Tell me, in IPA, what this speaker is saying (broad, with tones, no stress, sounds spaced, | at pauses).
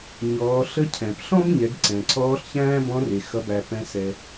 ɲ ɔː˩˧ ɬ ə˧˥ cʰ ɛ̃˩ p ɬ ɔ̃˥ b ɲ ɛ˩˧ ɡ ǀ ɛ̃˩ ǀʰ ɔː˧˥ ɬ ç æ̃ː˥ b ɔ̃˧˥ r e˩ x ʌ˩˧ b æ˩ p ɛ̃˩˧ s ɛ˩